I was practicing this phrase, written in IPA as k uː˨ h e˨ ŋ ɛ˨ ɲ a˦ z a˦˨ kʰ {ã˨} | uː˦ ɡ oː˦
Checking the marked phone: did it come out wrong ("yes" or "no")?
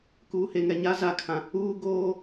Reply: no